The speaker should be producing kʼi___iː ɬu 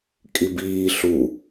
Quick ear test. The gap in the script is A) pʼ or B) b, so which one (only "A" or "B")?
B